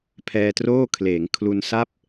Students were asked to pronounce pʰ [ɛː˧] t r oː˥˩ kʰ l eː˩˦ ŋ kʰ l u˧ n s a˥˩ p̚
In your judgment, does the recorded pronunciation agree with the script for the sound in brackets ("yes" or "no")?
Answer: yes